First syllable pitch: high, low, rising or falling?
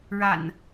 low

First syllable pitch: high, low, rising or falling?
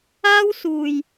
high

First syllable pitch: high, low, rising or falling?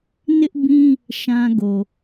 high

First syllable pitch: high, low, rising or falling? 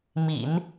low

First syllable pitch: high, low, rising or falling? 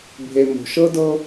low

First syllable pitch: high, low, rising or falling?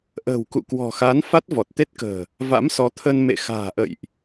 low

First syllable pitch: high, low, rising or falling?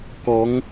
rising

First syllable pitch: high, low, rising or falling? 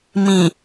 low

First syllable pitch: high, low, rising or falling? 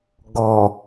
low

